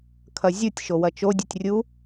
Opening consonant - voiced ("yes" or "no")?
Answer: no